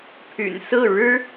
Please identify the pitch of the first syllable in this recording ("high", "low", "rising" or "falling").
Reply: low